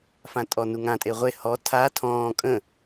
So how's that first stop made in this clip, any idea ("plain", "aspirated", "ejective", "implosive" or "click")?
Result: ejective